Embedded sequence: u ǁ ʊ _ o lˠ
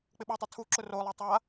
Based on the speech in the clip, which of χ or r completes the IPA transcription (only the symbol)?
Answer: r